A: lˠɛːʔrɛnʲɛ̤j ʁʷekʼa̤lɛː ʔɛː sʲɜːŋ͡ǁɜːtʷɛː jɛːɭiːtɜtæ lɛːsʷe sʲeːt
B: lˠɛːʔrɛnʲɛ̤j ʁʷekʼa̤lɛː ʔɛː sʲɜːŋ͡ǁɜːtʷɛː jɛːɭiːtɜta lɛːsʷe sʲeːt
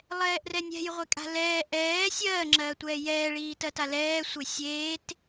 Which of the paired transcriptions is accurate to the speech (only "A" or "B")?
B